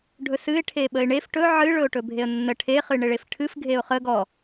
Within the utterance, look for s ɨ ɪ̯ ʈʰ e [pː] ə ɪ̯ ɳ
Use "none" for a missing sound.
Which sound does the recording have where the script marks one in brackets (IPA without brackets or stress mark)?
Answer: ɓ